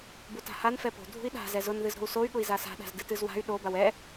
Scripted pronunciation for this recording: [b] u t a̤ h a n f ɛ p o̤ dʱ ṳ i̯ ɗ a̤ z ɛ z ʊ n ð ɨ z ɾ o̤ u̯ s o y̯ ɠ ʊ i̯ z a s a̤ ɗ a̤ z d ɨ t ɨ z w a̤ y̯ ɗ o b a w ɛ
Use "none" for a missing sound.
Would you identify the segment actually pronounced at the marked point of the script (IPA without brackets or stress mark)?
b